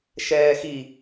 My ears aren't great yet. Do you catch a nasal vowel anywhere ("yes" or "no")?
no